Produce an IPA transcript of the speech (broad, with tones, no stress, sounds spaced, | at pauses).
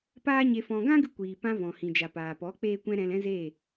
p aː˦ ɲ e˧ f ɔ̃˧ ɡ ã˦ ɡ ɨ˧ kʷ iː˨ p ã˧ v ɔ̃˨ h ĩ˨ d͡ʒ a˨ p aː˨ p ɔ˨˦ k͡p eː˦ kʷ ɛ̃˦ ɾ ɛ̃˧ l ɛ̃˦ z eː˦˨